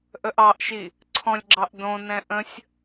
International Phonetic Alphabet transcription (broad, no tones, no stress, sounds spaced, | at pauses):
ʔ ə ʔ ɑ ʔ ʃ i | ǀʰ ɔ̃ lʲ ɡ͡ǁ ɑ ʔ d õ n ɛ̃ ʔ ə̃ sʲ